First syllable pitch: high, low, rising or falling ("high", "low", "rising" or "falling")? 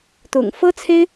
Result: low